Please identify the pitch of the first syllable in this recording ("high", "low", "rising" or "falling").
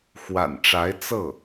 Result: low